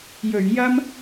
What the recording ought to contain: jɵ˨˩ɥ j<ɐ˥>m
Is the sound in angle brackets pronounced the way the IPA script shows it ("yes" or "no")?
yes